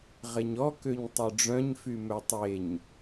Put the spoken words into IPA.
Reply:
ʁ e ɲ ɔ k ø ɲ tˤ ø ɖ͡ʐ œ̃ ɲ f y m œ tˤ e ɲ

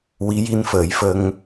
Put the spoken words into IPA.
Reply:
w i˧˥ j i˧ n f əː˨˩˦ j f ə˧ ŋ

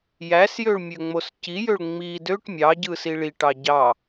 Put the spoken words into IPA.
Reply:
j æ s j ø ɭ mʲ ø ŋ͡m o s c i j ø ɭ ŋ͡m i d ø ʈ mʲ ɑ ɟ ɯ s i ɭ i ʈ ɑ ɟ ɑ

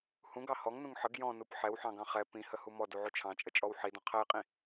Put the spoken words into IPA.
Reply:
h ũ ɡ ɑ h ɔ ŋ n ũ ŋ ħ ə ɡ j ɔ̃ n u p ħ ɛ w ħ ɑ̃ ɡ ɑ̃ χ ɛ p ĩ h ə h u m ɔ d u ʕ u t͡ʃʰ ɑ̃ t͡ʃʼ ə t͡ʃʼ ɔ w ħ i d ɔ̃ qʰ ɛ j qʼ ĩ

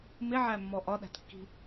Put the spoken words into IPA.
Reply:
m ɪ ʕ æ mː ɔ ʔ ɒ ɗ æ̤ t kː i̤

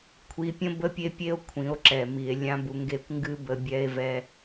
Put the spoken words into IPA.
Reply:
kʷʰ i˧ pʲ ə̃˦ b ə˦ pʲ e˦ pʲ e˦ o̯ kʷʰ ĩ˨˦ o̯ ǁ ɛ˨ m i˨ e̯ lʲ ã˦ b u˧ ŋ ɡ e˦ kʷ ŋ ɡ ɨ˦ b ə˧ bʲ ɛ˦ e̯ v ɛ˦

